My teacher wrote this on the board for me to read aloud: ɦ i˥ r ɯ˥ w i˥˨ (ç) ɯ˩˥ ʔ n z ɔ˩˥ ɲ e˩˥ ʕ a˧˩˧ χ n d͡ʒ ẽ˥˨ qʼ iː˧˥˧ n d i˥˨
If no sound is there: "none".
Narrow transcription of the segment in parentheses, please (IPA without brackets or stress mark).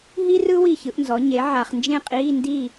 ç